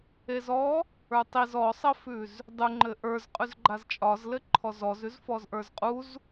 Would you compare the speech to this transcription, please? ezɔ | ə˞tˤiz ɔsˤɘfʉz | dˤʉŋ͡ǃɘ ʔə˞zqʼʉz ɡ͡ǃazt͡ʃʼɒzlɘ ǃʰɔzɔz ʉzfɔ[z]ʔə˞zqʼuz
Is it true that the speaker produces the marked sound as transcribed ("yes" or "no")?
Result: yes